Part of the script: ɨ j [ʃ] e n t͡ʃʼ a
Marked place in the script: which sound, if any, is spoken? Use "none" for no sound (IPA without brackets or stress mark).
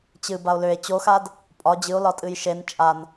ʃ